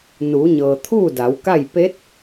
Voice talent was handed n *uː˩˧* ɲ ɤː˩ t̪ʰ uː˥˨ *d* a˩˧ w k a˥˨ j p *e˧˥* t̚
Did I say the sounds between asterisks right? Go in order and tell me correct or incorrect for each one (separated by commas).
correct, correct, correct